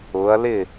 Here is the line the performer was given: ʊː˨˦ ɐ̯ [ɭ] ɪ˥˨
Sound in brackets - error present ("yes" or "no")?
yes